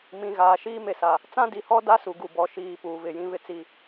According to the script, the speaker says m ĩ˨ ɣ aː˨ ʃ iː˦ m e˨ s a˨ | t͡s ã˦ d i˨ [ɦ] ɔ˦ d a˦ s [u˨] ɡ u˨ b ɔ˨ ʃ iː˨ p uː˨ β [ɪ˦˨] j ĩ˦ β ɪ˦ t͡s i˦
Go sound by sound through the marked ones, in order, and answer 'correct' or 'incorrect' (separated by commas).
incorrect, correct, incorrect